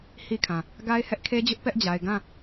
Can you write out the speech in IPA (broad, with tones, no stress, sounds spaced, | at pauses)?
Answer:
h i˦ kʰ ã˨ | ɡ a˦ ɪ̯ h ɛ˦ ʔ kʰ e˦ d͡ʑ ʊ˦ ʔ p ɛ˦ ʔ d͡ʑ a˨ ɪ̯ ɡ ã˦˨